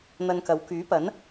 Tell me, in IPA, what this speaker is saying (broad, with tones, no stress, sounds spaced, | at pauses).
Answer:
n̪ ɐ˧ n k ɐ˨˧ w k yː˨˥ p ɐ˨˥ n